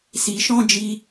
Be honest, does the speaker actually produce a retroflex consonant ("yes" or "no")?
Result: no